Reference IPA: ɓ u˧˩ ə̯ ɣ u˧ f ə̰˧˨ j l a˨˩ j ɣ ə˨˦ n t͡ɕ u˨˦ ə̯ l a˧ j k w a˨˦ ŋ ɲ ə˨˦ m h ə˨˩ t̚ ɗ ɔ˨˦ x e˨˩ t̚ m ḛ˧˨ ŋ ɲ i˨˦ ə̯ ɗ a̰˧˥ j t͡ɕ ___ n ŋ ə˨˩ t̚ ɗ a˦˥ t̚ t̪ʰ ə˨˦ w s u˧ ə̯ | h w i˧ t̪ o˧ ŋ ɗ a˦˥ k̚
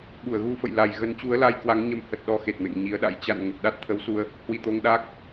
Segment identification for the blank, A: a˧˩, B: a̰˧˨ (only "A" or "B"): B